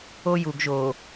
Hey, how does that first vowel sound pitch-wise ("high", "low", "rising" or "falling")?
high